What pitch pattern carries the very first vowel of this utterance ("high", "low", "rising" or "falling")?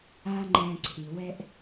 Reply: high